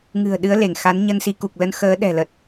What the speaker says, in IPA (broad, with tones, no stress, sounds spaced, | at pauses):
ŋ ɨ̤˨˩ ə̯ ɗ ɨ˨˦ ə̯ l e˧˩ ŋ x a˨˦ n ɲ ə˧ n s i˨˦ k u˨˩ k̚ l ə˧ n x əː˨˦ ɗ ɛ̤˨˩ l ə˨˩ t̚